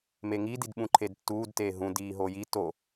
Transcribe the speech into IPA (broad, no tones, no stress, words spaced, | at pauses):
meŋididɓũ ǃʰedtːuːdteː ɦũ diːɦoːji to